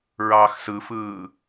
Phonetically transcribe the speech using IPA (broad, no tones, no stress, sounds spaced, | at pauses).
ɹ ɑː x s ɯ f ɯː